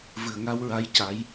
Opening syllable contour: low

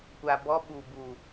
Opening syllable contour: low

